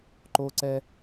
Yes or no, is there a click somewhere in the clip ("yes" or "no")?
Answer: yes